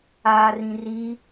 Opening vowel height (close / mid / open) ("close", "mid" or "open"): open